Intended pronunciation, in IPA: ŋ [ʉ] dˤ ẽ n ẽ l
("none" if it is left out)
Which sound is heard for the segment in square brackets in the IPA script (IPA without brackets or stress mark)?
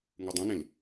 ʉ